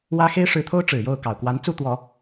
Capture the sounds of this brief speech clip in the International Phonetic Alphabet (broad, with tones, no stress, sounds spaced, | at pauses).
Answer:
w ä˥ x e˥ ɪ̯ ʂ ɻ̩˧˥ t̪ʰ o˥ ʊ̯ ʈ͡ʂ ɻ̩˨˩ j o˥˩ ʊ̯ k ɑ˨˩ ʊ̯ k w a˧˥ n t͡s u˥˩ t̪ w ɔ˨˩˦